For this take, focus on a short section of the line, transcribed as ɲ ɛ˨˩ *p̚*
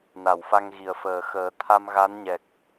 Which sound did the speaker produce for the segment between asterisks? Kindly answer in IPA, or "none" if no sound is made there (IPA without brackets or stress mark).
k̚